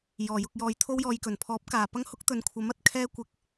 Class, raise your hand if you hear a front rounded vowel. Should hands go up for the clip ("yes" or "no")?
no